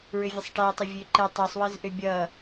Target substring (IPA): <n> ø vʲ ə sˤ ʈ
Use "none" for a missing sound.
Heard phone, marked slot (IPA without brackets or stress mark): ɹ